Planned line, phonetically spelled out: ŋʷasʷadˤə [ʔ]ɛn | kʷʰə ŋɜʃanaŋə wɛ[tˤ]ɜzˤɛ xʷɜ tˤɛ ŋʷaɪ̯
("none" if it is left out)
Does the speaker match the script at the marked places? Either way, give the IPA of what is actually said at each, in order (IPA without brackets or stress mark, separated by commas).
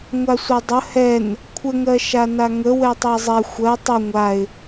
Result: h, tˤ